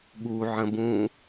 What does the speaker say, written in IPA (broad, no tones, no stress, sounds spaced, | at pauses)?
ɠ u ʕ ə̃ b ũ